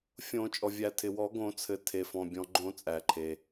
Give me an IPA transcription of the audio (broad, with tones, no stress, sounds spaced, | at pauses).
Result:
fʲ õ˨˩˦ t͡ʃʼ ɔ˩ vʲ æ˨˩˦ tʰ ɪ˩ w ɔ˨˩˦ ɡ õ˨˩˦ t͡sʰ ɘ˩ tʰ e˩ f ɔ̃˩ bʲ ɔ̃˩ ɡ͡ǃ õ˨˩˦ t͡sʼ æ˩ ǃʰ e˩